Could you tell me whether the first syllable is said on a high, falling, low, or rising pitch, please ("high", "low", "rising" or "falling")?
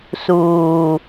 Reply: low